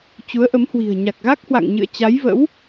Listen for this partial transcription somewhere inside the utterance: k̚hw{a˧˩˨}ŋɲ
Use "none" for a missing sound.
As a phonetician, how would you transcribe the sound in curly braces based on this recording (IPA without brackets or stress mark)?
a̰˧˨